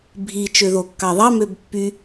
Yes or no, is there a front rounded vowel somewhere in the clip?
yes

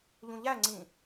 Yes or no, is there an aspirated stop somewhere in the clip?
no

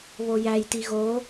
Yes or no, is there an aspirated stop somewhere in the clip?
no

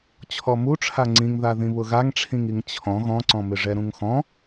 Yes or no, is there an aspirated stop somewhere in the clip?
yes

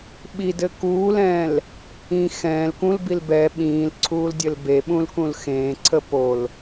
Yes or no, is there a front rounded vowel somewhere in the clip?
no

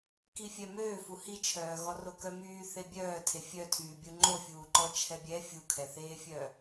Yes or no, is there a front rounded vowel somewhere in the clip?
yes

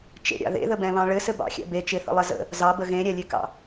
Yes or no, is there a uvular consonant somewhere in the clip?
no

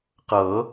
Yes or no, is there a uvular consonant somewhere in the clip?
yes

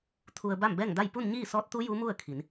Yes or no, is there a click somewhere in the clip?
no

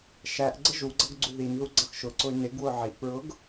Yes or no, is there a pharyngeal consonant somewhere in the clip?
yes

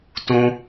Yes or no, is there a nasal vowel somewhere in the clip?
yes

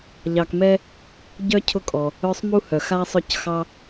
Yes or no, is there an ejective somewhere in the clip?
yes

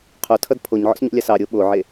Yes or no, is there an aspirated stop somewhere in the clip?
yes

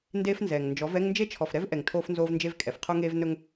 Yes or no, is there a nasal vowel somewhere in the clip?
no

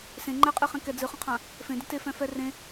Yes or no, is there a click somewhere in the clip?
yes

